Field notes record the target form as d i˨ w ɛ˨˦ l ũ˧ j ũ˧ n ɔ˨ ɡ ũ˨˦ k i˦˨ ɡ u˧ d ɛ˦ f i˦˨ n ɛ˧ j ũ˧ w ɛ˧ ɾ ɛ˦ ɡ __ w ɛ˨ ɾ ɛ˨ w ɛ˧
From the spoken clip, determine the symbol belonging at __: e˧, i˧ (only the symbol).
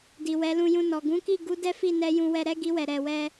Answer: i˧